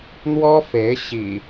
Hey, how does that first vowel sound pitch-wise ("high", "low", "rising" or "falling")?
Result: high